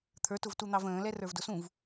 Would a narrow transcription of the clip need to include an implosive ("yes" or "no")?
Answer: no